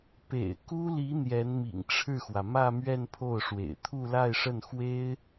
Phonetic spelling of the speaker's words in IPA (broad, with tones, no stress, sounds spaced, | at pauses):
p ḛ˨˩ ɪ̯ k u˥ l i˧˥ n̪ j ɛ˧˥ n m ḭ˨˩ ŋ ʈ͡ʂʰ ɻ̩˥˩ x w ä˩ m ä˥˧ m ɥ ɛ˥˧ n pʰ o˥˩ ʊ̯ ʂ w ḛ˨˩ ɪ̯ t̪ʰ u˥˧ l a˥˧ ɪ̯ ʂ ə˥˩ n x w e˥ ɪ̯